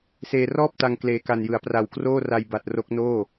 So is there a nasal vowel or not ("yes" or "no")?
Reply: no